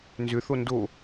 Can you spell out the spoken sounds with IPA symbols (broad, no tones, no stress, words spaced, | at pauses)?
nzʏθo ndo